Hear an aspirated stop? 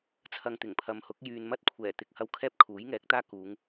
yes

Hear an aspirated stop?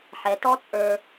no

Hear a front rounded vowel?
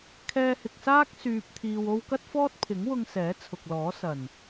yes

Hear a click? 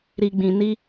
no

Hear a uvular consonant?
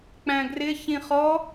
yes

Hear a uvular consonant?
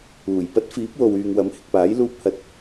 no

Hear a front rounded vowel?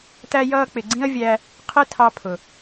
no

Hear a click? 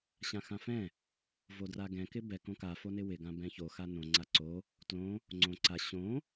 yes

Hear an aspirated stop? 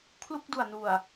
yes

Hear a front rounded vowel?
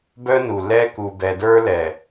yes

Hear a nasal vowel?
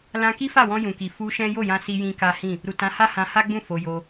yes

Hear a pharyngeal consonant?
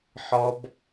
yes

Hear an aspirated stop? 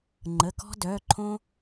yes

